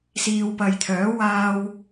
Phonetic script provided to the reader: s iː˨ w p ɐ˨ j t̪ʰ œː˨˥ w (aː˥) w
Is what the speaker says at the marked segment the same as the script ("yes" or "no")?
no